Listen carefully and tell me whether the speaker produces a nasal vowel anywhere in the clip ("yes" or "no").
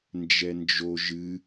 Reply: no